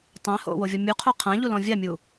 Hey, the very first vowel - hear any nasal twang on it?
yes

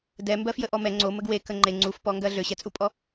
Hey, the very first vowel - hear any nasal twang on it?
no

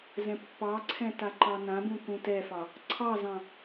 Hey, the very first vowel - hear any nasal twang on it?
yes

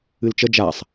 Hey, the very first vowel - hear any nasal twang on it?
no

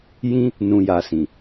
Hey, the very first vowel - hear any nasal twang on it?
yes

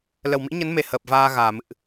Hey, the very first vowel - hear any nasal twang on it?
no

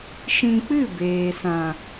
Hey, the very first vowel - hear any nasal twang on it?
yes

